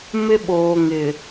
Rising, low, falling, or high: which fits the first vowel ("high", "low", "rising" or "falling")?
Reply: high